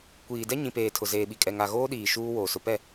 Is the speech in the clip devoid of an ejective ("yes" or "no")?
no